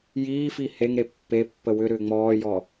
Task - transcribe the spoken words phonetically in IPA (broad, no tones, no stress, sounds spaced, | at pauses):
j iː f i h e ŋ ɾ e pː e pː ə w ʏ ɾ ʏː ŋ͡m ɔː j ɔ